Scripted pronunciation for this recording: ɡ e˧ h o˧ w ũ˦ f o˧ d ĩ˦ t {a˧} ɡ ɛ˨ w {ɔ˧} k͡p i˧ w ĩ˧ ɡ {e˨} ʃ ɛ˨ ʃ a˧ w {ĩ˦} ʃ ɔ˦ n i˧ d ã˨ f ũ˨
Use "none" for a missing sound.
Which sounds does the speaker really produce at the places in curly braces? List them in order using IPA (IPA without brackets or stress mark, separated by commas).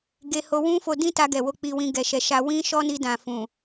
a˧, o˧, ɛ˨, ĩ˦